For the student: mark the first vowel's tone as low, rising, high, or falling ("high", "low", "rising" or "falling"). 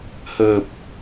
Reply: low